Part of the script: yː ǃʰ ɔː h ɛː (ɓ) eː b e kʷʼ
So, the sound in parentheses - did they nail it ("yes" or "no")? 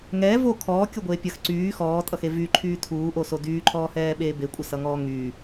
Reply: yes